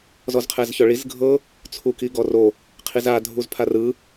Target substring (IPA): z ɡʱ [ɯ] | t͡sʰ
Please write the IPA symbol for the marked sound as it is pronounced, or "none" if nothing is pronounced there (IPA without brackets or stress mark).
ɤ